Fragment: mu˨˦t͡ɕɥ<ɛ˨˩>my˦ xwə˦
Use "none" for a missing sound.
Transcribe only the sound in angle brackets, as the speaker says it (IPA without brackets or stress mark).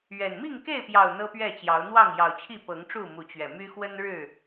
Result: ɛ˨˩